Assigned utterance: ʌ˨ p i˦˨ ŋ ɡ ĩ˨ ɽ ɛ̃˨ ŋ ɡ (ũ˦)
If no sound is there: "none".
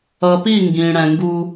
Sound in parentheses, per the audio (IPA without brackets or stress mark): u˦